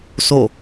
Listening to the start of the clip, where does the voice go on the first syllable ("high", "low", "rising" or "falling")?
falling